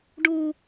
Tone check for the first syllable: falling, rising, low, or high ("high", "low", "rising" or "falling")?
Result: low